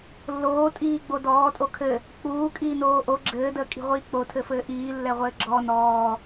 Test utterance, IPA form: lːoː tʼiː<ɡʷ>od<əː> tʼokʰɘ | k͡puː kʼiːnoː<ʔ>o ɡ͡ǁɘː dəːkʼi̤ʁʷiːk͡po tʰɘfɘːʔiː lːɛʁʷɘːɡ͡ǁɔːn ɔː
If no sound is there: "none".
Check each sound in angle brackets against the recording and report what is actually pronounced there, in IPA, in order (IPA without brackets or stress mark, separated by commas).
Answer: ɡ͡b, ɔː, ʔ